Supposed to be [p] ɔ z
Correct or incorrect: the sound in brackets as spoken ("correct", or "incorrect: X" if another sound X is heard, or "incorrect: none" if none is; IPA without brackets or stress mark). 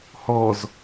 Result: incorrect: h